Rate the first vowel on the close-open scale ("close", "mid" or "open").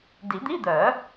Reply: close